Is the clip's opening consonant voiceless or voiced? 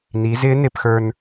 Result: voiced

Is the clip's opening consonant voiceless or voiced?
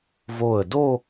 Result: voiced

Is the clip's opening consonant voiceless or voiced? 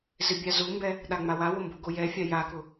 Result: voiced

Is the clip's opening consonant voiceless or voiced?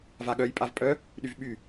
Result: voiced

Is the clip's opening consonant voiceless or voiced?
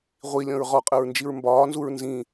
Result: voiced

